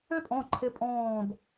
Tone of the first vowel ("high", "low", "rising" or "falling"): high